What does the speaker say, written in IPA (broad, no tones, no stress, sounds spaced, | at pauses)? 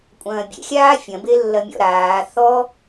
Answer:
kʷʼ ɐ̃ː bʲ ḛ xʲ aː fʲ ɐ̃ b e lː ɐ mʲ ɔ̰ ɾ aː θ ɔ